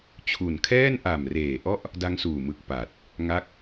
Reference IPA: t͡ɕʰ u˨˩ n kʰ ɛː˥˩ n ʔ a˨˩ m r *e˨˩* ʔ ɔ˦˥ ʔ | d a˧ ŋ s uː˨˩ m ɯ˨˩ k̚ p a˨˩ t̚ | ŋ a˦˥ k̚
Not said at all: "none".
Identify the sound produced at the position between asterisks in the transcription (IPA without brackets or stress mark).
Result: eː˨˩